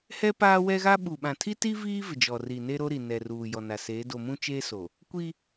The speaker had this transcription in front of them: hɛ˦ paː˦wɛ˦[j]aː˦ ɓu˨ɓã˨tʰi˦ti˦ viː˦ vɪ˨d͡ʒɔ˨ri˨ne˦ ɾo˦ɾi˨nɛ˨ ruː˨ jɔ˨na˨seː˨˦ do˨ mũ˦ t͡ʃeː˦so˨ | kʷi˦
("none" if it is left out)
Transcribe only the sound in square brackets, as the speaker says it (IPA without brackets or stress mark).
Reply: ɣ